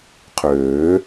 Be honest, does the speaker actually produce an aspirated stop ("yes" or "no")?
yes